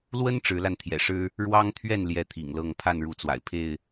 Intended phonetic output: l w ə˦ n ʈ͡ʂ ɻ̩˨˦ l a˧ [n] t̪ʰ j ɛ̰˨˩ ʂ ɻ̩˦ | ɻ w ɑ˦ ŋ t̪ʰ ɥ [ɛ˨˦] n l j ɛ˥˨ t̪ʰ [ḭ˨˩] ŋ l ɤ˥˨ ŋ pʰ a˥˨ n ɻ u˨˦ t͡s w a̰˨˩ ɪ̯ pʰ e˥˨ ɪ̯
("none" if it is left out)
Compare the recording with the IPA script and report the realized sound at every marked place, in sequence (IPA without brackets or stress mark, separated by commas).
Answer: n, ɛ˥˨, ḭ˨˩